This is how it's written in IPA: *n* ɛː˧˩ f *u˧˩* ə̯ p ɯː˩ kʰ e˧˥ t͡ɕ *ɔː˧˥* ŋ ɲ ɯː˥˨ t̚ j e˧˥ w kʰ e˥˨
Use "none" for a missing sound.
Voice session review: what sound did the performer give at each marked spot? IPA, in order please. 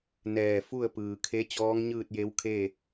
n, u˥˨, ɔː˧˥

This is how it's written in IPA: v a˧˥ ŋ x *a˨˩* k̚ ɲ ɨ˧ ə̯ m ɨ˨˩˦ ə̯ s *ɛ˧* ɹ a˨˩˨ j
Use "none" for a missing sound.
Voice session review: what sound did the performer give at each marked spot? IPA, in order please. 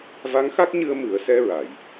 a˦˥, ɛ˧

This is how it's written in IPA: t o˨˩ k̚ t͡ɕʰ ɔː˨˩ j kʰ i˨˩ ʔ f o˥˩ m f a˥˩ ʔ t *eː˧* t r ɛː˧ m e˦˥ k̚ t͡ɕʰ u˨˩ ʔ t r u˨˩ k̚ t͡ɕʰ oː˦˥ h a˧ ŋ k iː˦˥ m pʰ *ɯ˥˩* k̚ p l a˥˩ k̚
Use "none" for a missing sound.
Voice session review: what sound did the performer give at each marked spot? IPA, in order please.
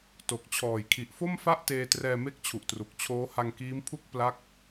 eː˧, u˥˩

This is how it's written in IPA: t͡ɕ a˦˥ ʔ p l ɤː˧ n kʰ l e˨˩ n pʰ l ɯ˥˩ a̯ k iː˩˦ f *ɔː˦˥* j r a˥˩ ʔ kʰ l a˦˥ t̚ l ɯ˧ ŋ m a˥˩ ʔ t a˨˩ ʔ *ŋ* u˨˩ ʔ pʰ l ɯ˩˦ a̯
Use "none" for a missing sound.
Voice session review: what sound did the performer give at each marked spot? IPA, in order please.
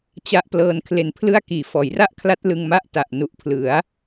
ɔː˩˦, n

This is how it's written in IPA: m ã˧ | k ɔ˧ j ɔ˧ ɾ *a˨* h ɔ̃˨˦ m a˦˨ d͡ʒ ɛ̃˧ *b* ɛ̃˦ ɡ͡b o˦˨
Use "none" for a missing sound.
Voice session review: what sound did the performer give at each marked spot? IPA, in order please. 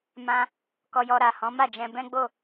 a˨, b

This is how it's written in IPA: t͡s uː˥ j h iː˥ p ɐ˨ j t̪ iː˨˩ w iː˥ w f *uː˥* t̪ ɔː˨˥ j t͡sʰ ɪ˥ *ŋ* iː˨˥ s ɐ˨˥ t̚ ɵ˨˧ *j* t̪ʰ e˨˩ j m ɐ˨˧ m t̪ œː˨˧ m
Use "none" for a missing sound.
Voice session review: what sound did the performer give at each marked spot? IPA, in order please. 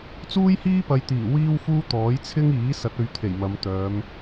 uː˥, ŋ, ɥ

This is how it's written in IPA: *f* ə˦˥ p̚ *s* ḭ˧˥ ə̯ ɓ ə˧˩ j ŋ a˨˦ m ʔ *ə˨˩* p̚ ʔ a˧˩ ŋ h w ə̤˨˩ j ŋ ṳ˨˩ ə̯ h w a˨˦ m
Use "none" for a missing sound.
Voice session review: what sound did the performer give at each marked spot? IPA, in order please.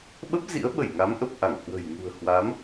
ɓ, z, ə˨˩

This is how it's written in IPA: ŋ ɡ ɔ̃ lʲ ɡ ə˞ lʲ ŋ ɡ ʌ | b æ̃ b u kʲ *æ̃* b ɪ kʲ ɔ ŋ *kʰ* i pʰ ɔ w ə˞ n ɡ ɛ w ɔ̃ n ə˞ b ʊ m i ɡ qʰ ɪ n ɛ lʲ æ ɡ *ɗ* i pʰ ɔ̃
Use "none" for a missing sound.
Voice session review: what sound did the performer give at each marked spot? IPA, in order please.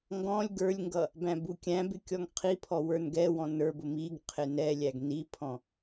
æ̃, qʰ, n

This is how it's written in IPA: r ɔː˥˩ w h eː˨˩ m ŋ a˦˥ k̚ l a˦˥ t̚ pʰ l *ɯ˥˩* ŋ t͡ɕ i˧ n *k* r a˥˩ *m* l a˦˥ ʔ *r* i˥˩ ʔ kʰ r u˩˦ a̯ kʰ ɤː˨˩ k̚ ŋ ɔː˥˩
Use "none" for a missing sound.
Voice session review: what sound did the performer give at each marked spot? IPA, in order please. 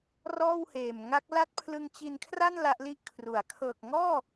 ɯ˧, kʰ, n, l

